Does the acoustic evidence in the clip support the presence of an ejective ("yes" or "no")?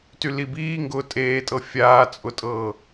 yes